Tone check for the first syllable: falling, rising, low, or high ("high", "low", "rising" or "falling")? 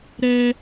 high